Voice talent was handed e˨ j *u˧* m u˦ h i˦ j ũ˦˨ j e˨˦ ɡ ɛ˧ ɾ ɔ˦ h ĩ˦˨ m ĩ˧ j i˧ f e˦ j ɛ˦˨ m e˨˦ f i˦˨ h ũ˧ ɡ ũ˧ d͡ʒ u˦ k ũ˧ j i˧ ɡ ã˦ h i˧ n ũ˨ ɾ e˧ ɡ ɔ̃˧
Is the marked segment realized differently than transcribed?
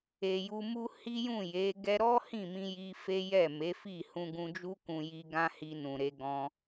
no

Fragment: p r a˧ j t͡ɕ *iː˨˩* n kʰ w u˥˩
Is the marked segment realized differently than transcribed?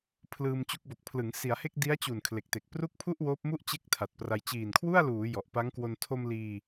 no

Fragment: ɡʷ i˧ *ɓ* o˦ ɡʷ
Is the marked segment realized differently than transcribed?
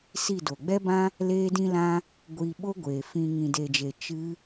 no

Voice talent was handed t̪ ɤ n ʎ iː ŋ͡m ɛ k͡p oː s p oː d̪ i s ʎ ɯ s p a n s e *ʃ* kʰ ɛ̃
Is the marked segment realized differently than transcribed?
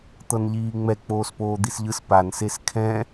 yes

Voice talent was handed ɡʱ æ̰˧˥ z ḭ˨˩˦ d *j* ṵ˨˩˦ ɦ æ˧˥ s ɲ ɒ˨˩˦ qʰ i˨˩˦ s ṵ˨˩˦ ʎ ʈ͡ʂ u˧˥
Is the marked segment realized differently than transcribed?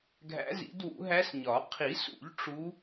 yes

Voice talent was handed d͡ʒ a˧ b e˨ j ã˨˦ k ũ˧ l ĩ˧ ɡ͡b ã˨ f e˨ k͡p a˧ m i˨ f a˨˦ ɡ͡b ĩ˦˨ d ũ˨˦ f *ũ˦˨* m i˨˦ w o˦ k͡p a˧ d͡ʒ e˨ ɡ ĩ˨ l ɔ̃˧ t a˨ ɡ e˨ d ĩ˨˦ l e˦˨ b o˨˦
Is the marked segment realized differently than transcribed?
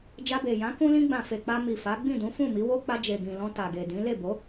no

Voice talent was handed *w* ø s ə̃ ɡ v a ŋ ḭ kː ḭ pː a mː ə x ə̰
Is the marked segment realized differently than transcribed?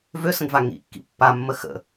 yes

